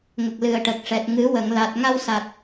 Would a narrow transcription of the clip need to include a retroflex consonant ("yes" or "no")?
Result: yes